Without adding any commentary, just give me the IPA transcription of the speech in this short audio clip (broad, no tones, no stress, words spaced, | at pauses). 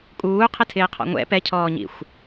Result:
kʼuːqʰɪtʰɪːqʰɔ̰ ŋʷɛ̰ pɛcʰɔːɲḭxʷ